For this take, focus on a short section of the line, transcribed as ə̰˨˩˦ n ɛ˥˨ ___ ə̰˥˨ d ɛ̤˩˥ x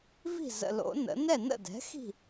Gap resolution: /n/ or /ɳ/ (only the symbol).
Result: n